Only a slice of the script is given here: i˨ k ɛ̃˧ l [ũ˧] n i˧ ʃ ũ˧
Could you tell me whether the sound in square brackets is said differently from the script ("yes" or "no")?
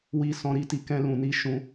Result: yes